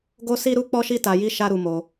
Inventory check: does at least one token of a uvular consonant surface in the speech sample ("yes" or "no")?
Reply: no